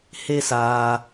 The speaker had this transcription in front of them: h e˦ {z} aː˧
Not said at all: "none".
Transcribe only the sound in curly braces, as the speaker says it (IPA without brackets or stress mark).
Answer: s